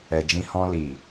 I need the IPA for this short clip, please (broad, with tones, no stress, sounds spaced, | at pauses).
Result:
ɛ˨ d͡ʒ ĩ˧ h ɔ̃˧ l i˨